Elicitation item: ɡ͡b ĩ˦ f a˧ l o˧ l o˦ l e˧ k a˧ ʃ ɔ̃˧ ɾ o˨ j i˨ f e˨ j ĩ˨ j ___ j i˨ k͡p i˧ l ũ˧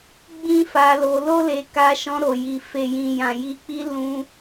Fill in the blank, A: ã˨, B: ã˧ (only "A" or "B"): A